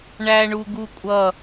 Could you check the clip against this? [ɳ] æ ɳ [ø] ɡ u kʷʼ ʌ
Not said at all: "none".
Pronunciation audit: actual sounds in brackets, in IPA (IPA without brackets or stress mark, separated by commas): ɳ, u